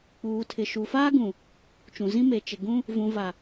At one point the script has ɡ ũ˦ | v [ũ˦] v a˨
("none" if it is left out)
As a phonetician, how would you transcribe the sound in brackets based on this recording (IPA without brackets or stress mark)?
ũ˨